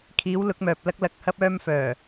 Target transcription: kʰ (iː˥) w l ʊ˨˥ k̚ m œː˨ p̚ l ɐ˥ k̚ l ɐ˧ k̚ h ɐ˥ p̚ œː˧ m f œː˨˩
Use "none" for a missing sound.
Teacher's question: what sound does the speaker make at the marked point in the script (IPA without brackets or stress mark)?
iː˨˥